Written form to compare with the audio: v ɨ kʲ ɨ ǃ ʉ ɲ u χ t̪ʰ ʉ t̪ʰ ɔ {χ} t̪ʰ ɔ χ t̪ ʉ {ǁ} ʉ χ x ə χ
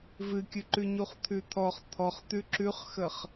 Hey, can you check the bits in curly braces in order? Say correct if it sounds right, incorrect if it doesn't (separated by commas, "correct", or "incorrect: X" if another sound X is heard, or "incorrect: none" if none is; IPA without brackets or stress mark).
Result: correct, correct